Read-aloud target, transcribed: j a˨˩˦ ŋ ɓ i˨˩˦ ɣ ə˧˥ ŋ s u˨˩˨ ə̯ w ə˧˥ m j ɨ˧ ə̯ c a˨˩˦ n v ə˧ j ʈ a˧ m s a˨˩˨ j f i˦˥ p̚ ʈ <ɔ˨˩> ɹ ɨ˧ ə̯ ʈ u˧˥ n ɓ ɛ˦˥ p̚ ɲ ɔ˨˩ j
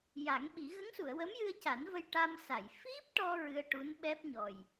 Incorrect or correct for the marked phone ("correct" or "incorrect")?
incorrect